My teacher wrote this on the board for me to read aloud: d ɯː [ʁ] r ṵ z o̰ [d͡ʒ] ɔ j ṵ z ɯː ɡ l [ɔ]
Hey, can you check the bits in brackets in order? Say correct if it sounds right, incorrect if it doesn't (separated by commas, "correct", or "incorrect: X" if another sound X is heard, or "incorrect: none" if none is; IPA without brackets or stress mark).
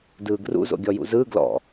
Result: incorrect: ɡ, incorrect: ɡʲ, incorrect: ɔ̰